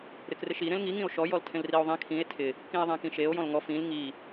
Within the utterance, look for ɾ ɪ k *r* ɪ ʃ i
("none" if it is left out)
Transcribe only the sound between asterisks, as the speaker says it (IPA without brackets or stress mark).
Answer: r